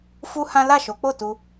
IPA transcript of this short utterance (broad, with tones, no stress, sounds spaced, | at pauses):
f u˦ h ã˦ l a˦˨ ʃ o˨˦ k͡p o˦˨ t u˧